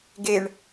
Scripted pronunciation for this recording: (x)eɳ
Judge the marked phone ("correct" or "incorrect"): incorrect